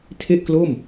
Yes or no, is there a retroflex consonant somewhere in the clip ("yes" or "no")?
no